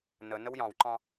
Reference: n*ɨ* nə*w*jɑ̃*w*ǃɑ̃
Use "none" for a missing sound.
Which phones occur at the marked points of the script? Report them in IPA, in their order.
ə, w, w

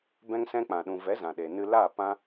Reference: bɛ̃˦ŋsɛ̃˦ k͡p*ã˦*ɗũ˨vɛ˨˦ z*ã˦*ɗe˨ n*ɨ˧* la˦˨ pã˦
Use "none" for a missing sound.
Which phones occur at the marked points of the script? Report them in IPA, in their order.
ã˨, ã˨, ɨ˧

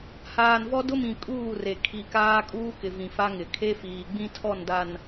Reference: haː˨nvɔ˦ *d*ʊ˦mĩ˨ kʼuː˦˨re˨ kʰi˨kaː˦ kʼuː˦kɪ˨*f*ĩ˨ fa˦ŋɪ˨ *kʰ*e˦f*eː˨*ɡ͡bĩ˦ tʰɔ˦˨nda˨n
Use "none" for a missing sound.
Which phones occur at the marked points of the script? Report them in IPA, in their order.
d, v, kʰ, iː˨

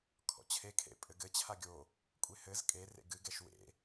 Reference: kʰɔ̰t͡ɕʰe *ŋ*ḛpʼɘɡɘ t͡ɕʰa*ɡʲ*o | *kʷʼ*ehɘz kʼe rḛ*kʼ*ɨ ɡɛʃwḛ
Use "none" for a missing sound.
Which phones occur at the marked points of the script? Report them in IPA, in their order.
kʰ, ɡʲ, kʷʼ, ɡ

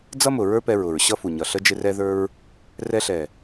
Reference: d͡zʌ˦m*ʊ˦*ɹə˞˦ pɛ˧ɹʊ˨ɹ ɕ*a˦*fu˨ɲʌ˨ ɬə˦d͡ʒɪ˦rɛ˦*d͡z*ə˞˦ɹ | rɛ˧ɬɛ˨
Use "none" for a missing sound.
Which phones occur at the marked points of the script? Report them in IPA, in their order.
ʊ˨, ʌ˦, ð

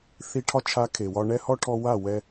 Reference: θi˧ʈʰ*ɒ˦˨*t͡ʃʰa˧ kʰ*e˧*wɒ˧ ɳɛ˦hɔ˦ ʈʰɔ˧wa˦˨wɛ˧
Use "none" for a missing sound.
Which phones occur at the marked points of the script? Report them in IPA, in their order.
ɒ˦, e˨

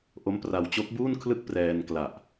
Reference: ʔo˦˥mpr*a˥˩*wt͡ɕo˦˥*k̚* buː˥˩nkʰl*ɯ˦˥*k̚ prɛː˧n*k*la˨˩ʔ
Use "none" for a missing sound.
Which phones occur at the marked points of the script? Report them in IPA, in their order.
a˧, k̚, ɯ˥˩, k

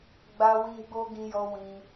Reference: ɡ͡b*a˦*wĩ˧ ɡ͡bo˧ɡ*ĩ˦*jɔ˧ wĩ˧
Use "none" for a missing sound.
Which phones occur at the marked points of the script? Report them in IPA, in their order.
a˧, ĩ˧

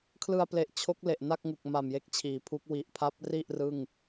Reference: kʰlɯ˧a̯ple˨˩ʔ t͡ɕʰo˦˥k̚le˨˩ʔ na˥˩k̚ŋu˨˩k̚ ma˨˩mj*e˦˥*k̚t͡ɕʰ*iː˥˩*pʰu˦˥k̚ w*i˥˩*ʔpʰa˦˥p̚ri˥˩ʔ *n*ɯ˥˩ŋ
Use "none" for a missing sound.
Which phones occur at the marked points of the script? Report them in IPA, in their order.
e˦˥, iː˩˦, i˨˩, r

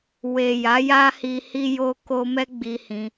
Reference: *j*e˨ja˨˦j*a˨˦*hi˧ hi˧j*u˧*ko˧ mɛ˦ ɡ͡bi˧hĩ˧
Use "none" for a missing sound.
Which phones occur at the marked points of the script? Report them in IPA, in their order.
w, a˦, o˧

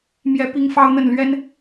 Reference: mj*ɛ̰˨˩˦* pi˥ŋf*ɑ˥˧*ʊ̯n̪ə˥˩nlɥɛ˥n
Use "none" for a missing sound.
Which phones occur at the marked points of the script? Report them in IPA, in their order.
ɛ˥, ɑ˥

